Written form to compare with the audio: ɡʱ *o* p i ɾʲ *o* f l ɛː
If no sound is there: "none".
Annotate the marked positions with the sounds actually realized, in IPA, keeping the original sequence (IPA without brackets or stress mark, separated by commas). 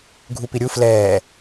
u, u